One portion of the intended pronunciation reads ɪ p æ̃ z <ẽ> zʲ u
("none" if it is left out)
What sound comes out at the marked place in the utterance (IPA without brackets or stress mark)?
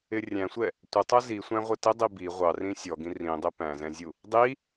ɛ̃